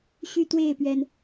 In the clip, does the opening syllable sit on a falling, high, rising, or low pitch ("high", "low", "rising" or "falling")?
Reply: high